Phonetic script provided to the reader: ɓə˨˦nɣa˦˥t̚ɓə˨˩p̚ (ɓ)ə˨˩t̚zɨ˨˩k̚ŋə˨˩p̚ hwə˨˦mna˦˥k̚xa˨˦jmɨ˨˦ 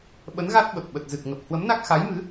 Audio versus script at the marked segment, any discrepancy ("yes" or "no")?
no